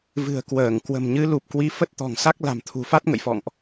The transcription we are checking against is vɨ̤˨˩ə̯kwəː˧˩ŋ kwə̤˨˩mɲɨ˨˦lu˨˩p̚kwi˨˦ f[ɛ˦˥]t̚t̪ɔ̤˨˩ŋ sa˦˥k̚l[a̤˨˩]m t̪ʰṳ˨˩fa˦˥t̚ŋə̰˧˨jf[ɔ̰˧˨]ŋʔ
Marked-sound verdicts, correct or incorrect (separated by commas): incorrect, correct, correct